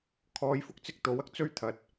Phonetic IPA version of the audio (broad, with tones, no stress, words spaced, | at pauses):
kʰɔː˨˧jfʊ˥k̚t͡sɪ˧k̚ t̪o˨˥wɐ˥k̚t͡sɵ˥ɥ t̪ʰɐ˨t̚